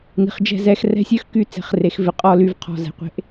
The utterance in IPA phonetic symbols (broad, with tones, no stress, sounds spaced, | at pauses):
n i̤˩ χ d͡ʒ ɛ̤˦˨ z ɛ˦˨ x r ɛ̤˦˨ sʲ œ˥ x k y˦˨ t͡s e̤˩˥ χ r e˩˥ x v ɪ˦˨ qʼ ɔ˥ l y˦˨ v qʰ ɔ̤˧˥˧ z ɛ̤˩˥ qʷ e̤˧˥˧ ʔ